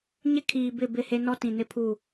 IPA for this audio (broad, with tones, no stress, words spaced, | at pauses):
ɲɪ˦kʰiː˨ bɪ˦˨bɪ˦˨he˦ nɔ˦ tĩ˨nɪ˦pʰu˦˨